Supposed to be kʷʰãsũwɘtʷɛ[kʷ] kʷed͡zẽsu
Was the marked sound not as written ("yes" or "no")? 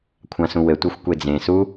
yes